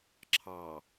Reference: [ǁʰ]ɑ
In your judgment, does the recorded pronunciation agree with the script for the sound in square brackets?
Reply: yes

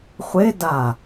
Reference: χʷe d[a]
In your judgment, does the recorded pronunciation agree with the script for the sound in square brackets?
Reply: yes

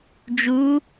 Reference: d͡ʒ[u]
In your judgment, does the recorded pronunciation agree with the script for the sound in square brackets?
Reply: yes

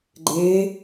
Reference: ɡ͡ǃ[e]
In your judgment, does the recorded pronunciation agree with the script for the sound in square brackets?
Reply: no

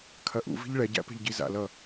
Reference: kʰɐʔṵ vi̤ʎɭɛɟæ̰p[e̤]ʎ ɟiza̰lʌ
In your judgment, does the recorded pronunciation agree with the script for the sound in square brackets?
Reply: yes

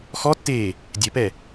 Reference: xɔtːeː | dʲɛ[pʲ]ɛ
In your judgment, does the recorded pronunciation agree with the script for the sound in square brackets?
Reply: no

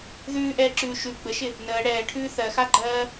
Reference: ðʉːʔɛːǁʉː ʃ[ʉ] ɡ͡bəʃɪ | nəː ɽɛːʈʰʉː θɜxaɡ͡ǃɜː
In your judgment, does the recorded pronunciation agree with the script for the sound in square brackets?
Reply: yes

